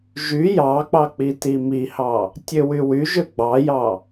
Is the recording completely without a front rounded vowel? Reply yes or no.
no